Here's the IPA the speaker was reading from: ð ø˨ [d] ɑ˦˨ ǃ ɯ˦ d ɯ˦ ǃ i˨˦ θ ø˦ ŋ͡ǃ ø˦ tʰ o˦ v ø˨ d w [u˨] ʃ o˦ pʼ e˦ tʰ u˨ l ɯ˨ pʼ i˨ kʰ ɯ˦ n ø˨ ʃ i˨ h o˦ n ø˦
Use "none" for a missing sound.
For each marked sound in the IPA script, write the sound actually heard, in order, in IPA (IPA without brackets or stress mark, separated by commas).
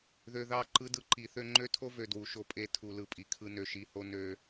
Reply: ð, u˨